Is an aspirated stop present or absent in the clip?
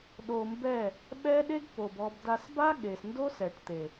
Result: absent